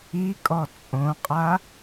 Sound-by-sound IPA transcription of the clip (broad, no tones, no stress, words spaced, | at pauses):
ikʼɔ t͡sʼõqʼa